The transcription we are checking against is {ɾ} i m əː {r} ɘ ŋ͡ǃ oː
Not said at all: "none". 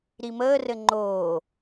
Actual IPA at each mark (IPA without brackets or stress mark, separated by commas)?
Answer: ɾ, r